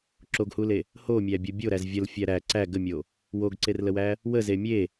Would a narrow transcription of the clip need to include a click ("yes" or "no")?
yes